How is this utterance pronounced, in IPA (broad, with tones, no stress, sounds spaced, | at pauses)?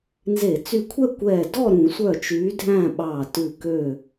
n z e˧˩˧ t͡s y˧˩ kʷʰ ɛ˥˨ kʷ ɛː˧˩ d ɔ˥˨ ɾ ũ˧˩˧ sʷ œ˧˩ t͡ʃ yː˨˦ dʱ æ̃˥˨ ɓ ɑː˧˩ t ʉ˧˩ k ø˧˩